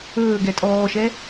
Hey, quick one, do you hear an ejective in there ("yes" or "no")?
yes